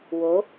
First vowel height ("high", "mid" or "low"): mid